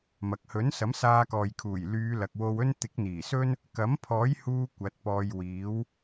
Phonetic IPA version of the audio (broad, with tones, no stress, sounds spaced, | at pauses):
m ɐ˨ k̚ h ɵ˨˥ n s ɐ˨˥ m s aː˧ k ɔː˨ j kʰ uː˨˩ j l yː˨˧ l ɐ˨ k̚ w o˧ w ɵ˥ n t̪ ɪ˨˥ k̚ n̪ iː˨˩ s ɵ˥ n | k ɐ˨˥ m pʰ ɔː˨˥ j h uː˧ kʷ ɐ˨˥ t̚ p ɔː˧ j w iː˨˥ w